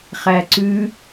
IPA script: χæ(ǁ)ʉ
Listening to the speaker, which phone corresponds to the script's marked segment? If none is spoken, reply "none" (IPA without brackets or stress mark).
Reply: ǀ